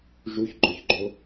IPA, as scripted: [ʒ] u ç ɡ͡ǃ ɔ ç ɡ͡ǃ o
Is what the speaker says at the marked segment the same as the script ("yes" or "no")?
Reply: yes